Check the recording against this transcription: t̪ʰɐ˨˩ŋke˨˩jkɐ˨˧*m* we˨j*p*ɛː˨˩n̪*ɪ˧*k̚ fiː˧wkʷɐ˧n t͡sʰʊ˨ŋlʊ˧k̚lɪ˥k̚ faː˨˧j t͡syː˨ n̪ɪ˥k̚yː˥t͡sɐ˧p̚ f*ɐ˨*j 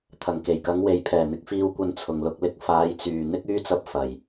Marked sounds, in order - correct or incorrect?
incorrect, incorrect, correct, correct

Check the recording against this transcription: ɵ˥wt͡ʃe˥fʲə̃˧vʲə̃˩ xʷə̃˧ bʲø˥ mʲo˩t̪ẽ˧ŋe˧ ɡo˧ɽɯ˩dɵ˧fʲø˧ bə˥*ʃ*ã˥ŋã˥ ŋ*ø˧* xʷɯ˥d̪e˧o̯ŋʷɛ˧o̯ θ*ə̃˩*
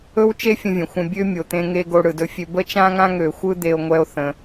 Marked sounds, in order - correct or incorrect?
incorrect, correct, correct

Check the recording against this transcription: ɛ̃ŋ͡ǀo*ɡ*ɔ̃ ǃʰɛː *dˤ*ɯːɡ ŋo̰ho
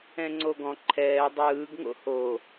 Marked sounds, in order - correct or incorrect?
correct, correct

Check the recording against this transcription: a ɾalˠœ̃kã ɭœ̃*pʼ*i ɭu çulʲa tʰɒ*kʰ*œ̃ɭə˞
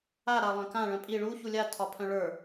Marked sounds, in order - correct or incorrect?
correct, incorrect

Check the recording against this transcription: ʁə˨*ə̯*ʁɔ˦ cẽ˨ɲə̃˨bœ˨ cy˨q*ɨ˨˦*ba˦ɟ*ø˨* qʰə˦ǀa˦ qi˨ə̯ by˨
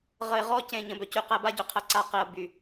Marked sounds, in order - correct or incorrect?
incorrect, incorrect, correct

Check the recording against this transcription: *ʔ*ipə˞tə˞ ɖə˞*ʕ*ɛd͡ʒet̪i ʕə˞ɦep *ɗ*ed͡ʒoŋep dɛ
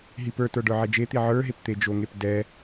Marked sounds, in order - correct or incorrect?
incorrect, correct, incorrect

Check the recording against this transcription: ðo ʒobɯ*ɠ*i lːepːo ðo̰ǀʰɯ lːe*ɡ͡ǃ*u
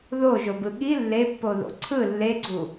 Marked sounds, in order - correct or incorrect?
correct, incorrect

